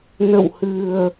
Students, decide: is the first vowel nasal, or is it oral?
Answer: oral